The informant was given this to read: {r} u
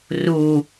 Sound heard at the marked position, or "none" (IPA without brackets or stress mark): r